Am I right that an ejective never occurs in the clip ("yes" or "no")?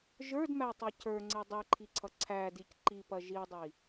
yes